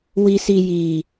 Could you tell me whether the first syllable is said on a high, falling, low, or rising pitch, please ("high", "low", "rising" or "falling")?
high